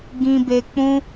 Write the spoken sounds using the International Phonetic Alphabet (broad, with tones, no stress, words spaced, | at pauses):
ɡĩ˧be˧ k͡pũ˦